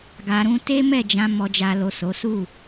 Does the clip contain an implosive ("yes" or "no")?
no